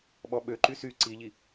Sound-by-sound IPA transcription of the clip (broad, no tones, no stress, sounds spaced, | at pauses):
ɓ ɔ ɓ ø ǃ y s y ǀ i ʎ i